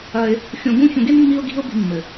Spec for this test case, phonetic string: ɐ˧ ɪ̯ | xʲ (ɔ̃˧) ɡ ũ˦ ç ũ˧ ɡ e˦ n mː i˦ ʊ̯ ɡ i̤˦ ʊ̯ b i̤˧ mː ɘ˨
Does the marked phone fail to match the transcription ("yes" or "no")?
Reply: yes